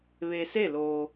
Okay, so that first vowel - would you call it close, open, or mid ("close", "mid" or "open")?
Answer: mid